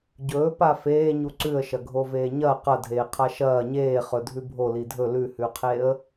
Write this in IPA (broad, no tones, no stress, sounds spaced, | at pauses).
ɟ ɵː p a f eː ɲ u ǀ ʉ ə̯ ʃ ɐ ɡʱ o v eː ɲ ɐ q ɐ dʱ eː qʰ a ʃ ɐː ɲ eː χ ɵ dʱ ʉ bʱ o l i dʱ ɵ l ʉ h ʉ qʰ e ə̯